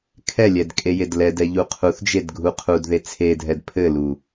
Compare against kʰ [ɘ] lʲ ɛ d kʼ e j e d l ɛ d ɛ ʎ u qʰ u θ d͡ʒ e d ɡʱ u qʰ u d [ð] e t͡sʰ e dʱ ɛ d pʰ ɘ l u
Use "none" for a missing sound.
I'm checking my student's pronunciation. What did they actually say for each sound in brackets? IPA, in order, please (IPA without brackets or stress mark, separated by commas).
ɛ, ð